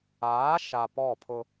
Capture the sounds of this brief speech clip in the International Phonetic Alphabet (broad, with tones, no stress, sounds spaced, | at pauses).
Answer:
aː˨˦ ʃ a˨ p ɔ˦˨ pʰ ʊ˦